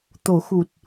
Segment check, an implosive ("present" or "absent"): absent